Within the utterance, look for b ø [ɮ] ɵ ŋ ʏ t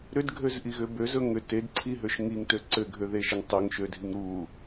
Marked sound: incorrect: z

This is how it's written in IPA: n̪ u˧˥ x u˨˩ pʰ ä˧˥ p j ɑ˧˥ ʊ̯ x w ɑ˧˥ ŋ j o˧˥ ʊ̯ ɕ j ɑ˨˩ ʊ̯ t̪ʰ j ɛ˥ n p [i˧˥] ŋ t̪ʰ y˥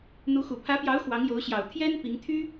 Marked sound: correct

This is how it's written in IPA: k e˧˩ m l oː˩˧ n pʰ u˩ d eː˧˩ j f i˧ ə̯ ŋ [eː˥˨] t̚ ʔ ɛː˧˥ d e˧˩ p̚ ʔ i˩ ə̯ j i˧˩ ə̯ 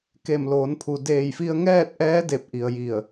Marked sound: incorrect: ɛː˥˨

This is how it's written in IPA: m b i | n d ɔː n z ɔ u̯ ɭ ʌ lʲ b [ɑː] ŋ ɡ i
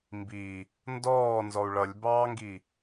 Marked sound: correct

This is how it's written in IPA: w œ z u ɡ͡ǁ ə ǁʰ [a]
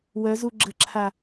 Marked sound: correct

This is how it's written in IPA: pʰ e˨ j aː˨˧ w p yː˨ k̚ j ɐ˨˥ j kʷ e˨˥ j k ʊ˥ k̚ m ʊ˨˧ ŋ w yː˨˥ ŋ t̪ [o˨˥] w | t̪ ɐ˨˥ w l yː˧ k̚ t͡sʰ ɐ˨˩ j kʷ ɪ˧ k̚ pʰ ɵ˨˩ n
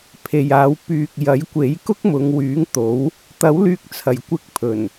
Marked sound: correct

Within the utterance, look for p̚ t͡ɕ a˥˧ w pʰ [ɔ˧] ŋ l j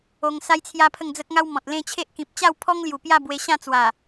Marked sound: incorrect: ɔ˦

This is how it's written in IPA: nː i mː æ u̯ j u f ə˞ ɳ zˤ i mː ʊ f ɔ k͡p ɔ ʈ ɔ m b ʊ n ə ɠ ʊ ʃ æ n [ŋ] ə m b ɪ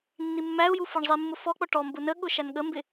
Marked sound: incorrect: ɠ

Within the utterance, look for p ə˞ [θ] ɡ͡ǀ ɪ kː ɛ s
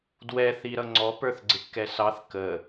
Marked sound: correct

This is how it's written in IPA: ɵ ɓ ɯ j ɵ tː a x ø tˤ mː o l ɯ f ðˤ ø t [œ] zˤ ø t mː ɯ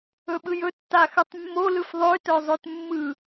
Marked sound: correct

